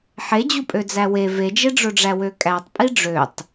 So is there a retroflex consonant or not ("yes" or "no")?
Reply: yes